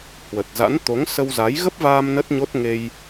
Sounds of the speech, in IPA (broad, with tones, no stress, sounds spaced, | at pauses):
h w ə˨˩ t̚ z a̰˧˥ n t̪ o˨˦ ŋ s ə˧ w z a˨˦ j ɣ ə˦˥ p̚ v aː˧ m n ə˦˥ t̚ ɲ o˦˥ t̚ ŋ e˧ j